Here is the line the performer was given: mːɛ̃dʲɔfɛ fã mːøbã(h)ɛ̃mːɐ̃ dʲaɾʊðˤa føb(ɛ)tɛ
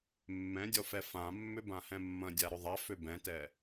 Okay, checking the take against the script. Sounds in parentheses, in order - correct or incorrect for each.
correct, incorrect: ɛ̃

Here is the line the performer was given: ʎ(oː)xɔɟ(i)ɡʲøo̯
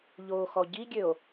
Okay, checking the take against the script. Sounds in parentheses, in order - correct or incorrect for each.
correct, correct

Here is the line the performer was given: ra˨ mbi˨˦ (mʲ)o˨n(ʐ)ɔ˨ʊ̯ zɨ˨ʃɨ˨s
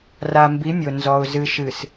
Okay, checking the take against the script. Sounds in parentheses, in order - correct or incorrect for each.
correct, incorrect: z

